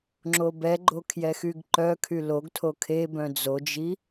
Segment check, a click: present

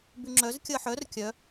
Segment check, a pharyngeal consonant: present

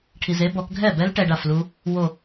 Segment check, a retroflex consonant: present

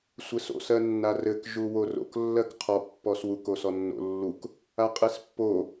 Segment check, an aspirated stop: present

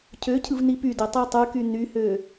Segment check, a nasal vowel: absent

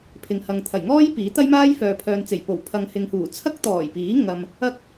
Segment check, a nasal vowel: absent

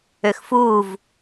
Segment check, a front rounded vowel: present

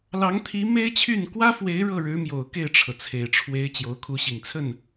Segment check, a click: absent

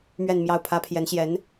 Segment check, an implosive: absent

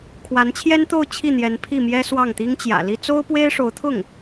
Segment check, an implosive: absent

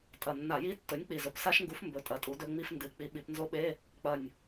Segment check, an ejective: present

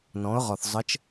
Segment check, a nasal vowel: present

